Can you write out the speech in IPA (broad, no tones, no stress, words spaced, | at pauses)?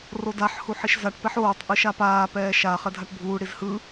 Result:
rodaħ huħiʃzaʈ pɛħoːtˤ ʔɯʃapaː pɛːʃa χɛdʱaʈbʱuː ɽizhɯ